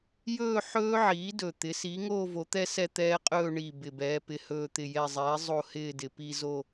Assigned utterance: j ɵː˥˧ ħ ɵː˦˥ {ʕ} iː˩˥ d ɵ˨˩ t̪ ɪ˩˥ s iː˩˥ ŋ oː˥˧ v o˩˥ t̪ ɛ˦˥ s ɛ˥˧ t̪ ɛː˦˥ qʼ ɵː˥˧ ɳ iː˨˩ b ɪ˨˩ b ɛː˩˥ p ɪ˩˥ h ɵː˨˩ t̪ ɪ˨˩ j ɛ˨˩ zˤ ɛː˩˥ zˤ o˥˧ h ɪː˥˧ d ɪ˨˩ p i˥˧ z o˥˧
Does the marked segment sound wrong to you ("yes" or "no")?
no